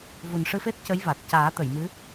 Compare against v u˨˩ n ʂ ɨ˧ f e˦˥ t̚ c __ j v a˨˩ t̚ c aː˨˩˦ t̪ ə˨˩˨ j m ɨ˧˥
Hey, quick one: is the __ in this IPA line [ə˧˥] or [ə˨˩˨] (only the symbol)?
ə˧˥